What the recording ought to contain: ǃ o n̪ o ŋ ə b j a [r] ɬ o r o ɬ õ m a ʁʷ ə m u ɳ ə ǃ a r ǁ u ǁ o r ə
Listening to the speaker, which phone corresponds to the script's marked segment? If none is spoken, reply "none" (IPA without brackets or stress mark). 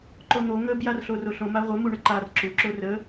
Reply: r